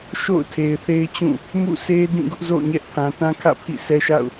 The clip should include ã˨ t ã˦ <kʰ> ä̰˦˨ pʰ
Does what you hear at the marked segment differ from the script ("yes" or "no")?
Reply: no